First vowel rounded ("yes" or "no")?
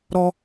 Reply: yes